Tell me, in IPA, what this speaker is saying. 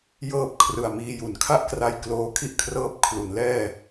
jɤː˥˩p̚kʰrɯ˨˩a̯miː˧ju˨˩n kʰa˥˩ʔkra˧jkloː˧ kʰi˥˩ʔkʰrɤː˦˥p̚ kʰlu˩˦nlɛː˥˩

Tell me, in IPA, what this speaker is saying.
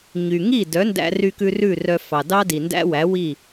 ɲy˩ ŋi˥˩ dœ˩˥ndæ̰˧ry˧kʉ˧ rʉ˥˩rœ˧ fɑ˩dɑ˥di˩ ndæ̰˥wæ˩˥wi˥˩

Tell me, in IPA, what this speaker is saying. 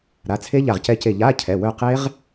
ɾa˩˧˩t͡sʰe˦˥ ʎa˦˨ʁ cɛ˦˥ce˦˨ ʎa˧˥˧cʰɛ˩˧˩ wœ˦˨qe˦˥ʁ

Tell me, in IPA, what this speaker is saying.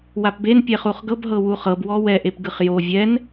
wapben pʲɛχuχɡɤb ɦɤwuχɤb wɔwɛ ʔepɡɯχjo vʲɛn

